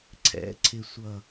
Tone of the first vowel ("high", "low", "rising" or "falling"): rising